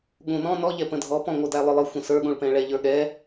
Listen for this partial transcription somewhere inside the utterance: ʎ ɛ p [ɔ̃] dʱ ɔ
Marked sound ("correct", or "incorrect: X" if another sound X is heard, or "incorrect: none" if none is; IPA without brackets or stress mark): incorrect: ə̃